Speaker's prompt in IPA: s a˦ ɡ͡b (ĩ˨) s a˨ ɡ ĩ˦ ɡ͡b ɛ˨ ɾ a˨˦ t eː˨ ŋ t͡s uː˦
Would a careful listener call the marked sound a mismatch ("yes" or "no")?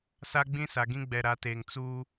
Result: yes